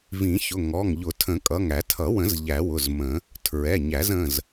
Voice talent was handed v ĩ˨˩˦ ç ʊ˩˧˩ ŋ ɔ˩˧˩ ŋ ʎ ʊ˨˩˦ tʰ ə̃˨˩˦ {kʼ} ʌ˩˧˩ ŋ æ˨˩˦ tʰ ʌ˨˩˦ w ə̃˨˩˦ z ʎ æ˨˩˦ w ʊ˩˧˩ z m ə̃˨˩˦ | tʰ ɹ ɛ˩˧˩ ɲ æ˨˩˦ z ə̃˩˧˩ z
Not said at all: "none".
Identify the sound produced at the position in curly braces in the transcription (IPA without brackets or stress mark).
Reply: kʼ